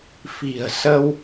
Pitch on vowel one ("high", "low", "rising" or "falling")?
low